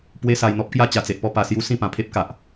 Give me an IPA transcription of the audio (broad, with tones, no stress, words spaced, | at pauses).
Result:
pwe˧sa˨˩jn̪ɔ˦p̚kja˥˧ t͡ɕa˨˩t͡se˨ʔpɔ˧ pa˨˩sju˧ sĩ˥˧pã˨˩pʰe˦p̚ka˨ʔ